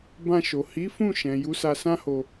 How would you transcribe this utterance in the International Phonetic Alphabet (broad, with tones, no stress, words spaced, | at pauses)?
bã˧ʃo˨ hi˨˦fũ˦˨ʃɛ̃˨ ju˨˦sa˧sã˦ho˧